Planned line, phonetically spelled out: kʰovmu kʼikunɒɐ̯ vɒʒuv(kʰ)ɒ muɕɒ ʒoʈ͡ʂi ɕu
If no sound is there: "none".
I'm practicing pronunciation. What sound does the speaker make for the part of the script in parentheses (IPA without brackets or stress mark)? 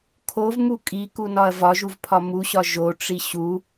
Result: pʰ